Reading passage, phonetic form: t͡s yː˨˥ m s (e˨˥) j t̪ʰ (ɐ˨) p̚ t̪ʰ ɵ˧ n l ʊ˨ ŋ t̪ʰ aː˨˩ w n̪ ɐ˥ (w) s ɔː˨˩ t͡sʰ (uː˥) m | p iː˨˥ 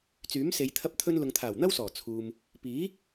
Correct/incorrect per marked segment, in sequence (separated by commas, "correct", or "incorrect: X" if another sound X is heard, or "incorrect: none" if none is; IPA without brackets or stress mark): incorrect: e˨˧, incorrect: ɐ˧, correct, incorrect: uː˨